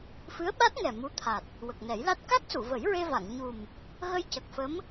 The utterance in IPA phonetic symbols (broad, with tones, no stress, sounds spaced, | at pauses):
f ɨ˧˥ ə̯ ɓ a˦˥ t̚ ŋ ɛ˨˩ m u˧˥ t̪ʰ a˨˩ t̚ | w ə˨˩ k̚ n ɛ˨˩˦ j l a˦˥ t̚ k a˦˥ k̚ s u˨˩˨ v ə˨˩˦ j ɹ e˧ v a˨˩˨ ŋ ɲ u˨˩ m | ɣ ə˧ j c ə˨˩ k̚ f ə˧˥ m